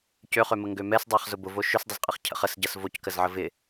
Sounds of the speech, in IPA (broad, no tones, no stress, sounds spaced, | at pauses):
c ø χ ø m ə ŋ ɡ ø m ɛ s dˤ a χ z ʊ b ʊ v o ʃ ʏ s dˤ ʊ z qʼ ə χ cʰ ə̰ χ ə s ɟ ɐ s v o c k ə z ʕ ə v ɪ